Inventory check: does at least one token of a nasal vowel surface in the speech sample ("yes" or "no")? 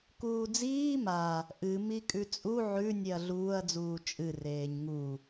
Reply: no